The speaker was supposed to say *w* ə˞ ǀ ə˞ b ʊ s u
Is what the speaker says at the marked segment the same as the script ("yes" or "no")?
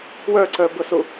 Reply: yes